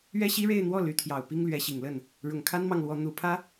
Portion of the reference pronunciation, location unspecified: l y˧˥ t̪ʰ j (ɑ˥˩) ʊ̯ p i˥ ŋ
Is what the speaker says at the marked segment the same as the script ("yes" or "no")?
no